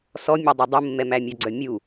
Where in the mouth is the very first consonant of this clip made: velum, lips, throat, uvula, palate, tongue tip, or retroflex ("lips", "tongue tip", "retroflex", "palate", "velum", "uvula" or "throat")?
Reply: tongue tip